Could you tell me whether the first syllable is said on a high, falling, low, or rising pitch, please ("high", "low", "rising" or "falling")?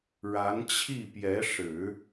rising